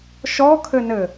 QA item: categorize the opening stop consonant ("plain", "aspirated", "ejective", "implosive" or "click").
aspirated